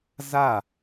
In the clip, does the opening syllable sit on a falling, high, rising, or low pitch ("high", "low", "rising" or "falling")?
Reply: falling